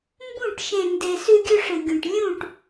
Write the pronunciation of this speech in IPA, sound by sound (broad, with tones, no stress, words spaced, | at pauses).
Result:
mbũ˦˨ʈ ʃẽ˨nde˨ sʉ˦ɡʲɵ˦ʂɨ˨ɡʲũ˨ʈ lʲũ˦˨ʈ